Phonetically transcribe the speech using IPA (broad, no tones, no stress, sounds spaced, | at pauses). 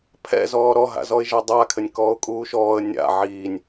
pʰ ɛ̰ z ɔː ɾ ɔ ɦ a̰ z ɔ ɪ̯ ʒ a dˤ a kʰ ɘ nʲ k ɔː ʊ̯ kʼ uː ʃ ɔː ə̯ nʲ a̰ ʕ iː nʲ